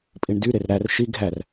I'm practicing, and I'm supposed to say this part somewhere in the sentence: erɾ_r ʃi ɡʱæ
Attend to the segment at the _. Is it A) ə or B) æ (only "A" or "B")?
B